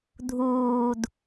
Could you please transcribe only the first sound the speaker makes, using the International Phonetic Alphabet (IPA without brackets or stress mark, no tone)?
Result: dʱ